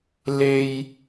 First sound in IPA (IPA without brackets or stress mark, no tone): l